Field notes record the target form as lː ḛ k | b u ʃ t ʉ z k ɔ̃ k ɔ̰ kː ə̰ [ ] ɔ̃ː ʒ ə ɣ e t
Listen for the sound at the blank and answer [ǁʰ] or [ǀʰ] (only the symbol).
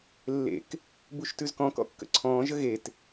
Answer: ǀʰ